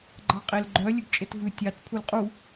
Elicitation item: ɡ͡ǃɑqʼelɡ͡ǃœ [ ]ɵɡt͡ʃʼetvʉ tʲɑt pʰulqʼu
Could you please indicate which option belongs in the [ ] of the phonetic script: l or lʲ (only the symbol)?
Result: lʲ